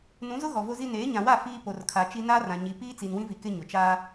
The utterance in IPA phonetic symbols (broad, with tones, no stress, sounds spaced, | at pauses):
n ũ˨˦ z ʊ˦ ɣ ɔ˨ v o˦ z i˦ n eː˨˦ ɲ ã˨ w a˦˨ f iː˦ p o˨ r kʰ a˨ t͡ʃ i˦ n aː˦ r ã˨ ɲ i˨ p iː˦ t͡s i˨ n w ĩ˦ v i˨ k ɪ˦ ɲ ʊ˨ t͡ʃ aː˦